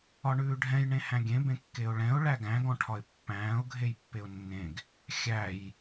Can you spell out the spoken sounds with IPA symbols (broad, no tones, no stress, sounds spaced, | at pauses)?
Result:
ɒ ɳ ʉː ɖʱ ɛ̃ j ɳ ẽ h æ̃ ɡʲ ẽ b ẽ kː e ʊ̯ ɭ ɛ̃ ʊ̯ ɭ æ ɡ æ̃ ɡ ɔ̃ ʈʰ ɒ ɪ̯ pː æ̃ː ʊ̯ ɡʱ e j pː e ʊ̯ nː ẽ ɡ | xʲ æ j